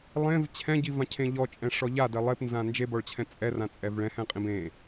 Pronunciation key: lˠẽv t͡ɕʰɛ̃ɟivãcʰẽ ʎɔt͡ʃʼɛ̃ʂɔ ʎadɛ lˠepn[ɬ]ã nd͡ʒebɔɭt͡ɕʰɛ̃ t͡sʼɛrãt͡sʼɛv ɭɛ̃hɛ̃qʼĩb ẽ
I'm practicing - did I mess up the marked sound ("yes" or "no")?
yes